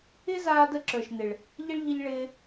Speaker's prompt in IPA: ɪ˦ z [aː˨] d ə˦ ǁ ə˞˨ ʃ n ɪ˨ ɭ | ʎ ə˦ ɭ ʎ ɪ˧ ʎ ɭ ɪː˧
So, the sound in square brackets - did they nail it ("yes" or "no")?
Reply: no